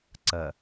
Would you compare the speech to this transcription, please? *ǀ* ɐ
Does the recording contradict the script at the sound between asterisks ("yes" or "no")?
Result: no